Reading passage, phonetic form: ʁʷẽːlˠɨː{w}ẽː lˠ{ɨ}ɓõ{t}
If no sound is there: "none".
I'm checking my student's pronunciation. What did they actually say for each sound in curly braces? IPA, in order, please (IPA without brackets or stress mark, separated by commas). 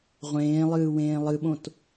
w, ɨ, t